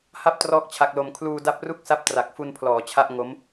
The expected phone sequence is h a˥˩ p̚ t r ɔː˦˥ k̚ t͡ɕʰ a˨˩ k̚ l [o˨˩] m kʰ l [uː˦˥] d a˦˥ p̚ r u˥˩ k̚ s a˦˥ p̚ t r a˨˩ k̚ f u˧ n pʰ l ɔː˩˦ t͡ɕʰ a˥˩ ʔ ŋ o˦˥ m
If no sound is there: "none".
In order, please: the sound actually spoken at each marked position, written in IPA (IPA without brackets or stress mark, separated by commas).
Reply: o˨˩, uː˧